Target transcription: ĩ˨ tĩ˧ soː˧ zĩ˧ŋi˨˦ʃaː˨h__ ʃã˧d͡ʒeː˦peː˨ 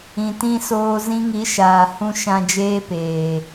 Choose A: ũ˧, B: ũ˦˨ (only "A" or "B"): A